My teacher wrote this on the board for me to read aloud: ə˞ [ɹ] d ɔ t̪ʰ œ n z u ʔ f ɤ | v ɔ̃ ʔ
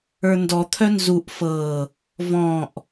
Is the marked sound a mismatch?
yes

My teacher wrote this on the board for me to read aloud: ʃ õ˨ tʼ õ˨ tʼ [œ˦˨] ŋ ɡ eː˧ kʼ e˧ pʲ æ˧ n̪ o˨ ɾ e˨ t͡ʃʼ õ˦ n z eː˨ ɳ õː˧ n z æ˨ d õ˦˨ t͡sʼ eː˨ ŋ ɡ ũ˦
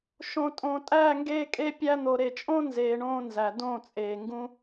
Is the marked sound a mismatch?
yes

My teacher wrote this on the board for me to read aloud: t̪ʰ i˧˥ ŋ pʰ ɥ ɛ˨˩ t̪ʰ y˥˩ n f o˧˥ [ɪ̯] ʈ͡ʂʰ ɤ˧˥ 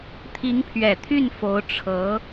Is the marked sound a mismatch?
yes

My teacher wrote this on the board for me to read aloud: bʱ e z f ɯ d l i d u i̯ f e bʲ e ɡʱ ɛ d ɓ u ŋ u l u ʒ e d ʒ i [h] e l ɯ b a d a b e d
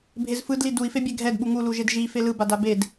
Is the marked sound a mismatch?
yes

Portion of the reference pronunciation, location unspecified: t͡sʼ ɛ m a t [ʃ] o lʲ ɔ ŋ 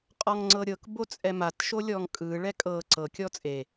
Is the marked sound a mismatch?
no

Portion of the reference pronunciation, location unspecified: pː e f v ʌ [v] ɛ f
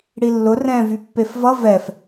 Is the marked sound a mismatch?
no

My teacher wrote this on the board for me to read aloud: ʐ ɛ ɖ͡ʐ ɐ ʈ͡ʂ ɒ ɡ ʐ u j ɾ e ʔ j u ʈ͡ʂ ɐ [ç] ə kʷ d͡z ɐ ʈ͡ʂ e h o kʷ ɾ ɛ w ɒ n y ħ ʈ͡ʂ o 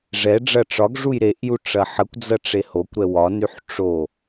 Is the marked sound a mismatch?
yes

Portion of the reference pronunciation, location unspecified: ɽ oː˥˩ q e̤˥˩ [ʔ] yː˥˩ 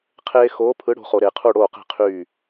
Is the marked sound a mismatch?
yes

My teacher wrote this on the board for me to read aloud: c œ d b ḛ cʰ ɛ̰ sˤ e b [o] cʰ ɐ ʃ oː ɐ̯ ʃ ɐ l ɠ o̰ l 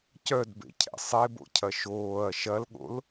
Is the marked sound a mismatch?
yes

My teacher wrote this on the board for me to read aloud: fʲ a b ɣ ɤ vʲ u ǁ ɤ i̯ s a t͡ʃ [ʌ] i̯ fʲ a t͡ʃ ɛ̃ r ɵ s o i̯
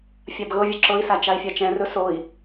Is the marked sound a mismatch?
yes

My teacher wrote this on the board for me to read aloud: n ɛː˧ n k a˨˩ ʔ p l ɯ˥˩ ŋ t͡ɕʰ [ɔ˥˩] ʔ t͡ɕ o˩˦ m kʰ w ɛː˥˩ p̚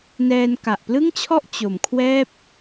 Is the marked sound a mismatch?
no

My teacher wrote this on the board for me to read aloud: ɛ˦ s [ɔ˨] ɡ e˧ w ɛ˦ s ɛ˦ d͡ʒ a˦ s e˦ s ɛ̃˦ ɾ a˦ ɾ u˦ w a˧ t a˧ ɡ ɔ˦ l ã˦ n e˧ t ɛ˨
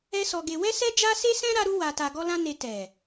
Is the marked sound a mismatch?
yes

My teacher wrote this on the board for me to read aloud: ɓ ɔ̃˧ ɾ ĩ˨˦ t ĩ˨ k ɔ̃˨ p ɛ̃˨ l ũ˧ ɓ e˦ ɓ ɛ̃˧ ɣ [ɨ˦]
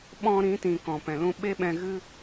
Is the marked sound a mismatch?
no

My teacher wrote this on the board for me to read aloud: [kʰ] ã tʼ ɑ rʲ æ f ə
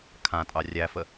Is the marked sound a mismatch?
no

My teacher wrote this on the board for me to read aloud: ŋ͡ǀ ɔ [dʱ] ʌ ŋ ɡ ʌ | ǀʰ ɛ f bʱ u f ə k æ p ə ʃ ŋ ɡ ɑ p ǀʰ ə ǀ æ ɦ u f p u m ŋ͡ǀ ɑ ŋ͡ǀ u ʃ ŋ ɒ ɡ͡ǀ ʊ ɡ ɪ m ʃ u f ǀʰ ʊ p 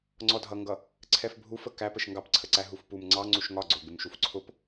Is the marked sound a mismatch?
no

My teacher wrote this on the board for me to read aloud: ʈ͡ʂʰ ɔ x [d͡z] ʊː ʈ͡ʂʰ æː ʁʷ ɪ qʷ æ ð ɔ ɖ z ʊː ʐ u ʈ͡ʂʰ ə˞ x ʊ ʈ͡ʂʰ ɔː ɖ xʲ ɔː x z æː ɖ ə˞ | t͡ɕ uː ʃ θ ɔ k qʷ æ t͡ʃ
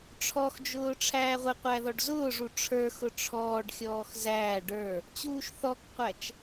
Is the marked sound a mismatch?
yes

